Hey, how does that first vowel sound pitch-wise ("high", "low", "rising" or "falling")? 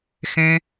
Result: high